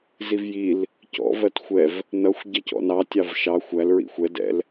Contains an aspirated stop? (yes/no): no